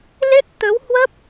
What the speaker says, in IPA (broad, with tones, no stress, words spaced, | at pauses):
le˦˥t̚t̪ə˨˦whwə˦˥p̚